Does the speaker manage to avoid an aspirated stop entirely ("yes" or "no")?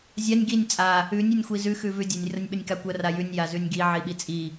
yes